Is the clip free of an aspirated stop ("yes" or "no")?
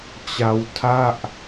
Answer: no